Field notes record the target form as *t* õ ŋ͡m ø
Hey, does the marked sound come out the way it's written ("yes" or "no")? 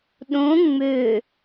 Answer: no